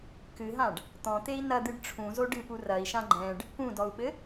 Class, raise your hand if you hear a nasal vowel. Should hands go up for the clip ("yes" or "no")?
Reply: yes